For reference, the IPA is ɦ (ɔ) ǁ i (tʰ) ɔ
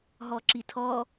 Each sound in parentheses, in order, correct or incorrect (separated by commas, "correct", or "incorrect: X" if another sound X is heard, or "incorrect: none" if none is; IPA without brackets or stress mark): correct, correct